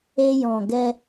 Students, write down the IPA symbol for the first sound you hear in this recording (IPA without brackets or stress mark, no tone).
e